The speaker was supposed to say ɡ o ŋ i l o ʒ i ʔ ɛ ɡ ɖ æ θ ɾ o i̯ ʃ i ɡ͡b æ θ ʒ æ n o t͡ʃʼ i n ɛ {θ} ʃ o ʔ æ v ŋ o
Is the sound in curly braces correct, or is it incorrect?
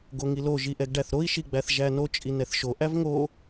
correct